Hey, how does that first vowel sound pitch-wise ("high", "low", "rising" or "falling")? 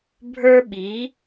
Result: high